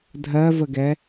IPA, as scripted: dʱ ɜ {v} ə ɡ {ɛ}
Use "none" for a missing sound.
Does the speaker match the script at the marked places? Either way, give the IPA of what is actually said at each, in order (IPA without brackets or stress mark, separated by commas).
v, ɛ